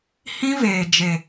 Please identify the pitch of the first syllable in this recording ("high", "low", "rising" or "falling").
high